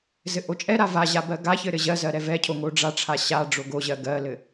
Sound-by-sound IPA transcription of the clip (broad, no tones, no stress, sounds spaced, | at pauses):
z ɘ ʔ o t͡ʃʼ ɛ ɾ a v a ʑ a b ɜ ɡ a ç ɘ ɾ ɘ ʑ ɜ z ɜ ɾ ɛ v ɛ cʰ o ŋ o ɖ͡ʐ a ʈ͡ʂʰ a ɕ a ɖ͡ʐ o ɡ o ʑ ɜ ɡ ɜ l ɘ